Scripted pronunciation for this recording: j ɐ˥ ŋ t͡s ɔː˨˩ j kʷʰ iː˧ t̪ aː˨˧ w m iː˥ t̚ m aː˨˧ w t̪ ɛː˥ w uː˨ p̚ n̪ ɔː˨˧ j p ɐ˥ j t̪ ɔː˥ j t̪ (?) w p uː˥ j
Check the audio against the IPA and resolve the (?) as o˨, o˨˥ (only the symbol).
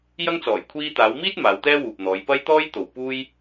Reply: o˨